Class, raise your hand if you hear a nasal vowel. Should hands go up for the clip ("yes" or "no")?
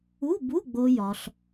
no